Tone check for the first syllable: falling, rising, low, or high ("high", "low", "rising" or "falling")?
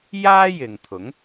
high